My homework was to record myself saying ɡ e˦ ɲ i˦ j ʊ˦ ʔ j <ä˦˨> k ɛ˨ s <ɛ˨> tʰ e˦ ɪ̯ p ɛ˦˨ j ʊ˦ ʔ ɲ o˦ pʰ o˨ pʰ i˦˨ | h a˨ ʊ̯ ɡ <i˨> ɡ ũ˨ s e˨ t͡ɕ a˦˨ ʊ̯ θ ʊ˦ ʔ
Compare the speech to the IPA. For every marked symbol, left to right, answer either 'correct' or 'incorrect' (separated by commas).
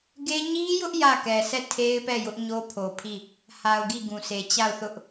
correct, incorrect, incorrect